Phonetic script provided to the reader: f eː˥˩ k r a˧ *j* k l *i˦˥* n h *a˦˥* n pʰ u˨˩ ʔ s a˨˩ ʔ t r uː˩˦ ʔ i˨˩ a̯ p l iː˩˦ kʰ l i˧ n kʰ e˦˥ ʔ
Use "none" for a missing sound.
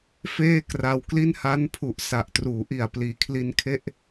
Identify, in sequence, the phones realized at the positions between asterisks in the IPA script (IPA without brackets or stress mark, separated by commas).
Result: w, i˥˩, a˦˥